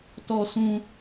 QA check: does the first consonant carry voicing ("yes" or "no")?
no